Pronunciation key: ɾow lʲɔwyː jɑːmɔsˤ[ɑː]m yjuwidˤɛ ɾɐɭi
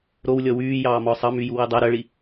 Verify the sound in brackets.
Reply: incorrect: ɑ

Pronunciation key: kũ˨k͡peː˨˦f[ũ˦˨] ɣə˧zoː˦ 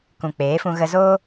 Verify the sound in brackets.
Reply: incorrect: ũ˧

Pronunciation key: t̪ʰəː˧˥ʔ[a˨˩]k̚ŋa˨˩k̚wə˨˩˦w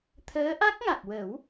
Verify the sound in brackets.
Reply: incorrect: a˦˥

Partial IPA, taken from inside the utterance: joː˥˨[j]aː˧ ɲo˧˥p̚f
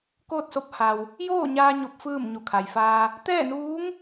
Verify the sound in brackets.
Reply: incorrect: ɲ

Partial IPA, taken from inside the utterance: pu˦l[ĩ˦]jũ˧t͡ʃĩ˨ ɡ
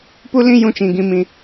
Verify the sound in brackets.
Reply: correct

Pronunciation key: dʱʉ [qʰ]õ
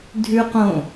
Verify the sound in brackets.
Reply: incorrect: q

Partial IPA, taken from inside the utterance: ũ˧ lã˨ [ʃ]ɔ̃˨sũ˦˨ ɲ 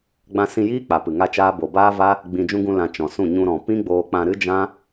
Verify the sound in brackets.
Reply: incorrect: t͡ʃ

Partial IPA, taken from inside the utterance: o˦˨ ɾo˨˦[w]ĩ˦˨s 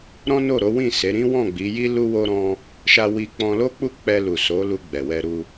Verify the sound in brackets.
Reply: correct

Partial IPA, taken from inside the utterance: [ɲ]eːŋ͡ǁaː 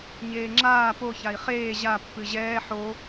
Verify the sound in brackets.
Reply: correct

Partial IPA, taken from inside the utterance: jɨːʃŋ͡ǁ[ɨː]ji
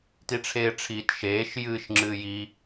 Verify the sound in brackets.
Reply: correct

